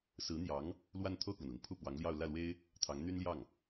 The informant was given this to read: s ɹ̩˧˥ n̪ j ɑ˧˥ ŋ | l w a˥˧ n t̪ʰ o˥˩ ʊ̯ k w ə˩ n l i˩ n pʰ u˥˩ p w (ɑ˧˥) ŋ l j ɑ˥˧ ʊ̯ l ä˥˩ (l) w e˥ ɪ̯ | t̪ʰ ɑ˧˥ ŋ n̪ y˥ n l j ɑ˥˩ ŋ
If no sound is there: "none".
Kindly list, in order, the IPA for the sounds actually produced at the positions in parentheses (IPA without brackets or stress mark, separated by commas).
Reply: ɑ˧˥, l